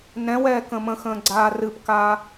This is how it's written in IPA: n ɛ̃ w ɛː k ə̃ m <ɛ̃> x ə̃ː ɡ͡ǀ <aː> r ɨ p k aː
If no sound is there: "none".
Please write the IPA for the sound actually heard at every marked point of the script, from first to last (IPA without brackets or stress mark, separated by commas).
ə̃, aː